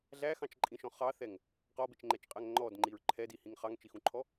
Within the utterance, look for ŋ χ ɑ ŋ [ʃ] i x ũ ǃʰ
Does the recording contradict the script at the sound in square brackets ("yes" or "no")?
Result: yes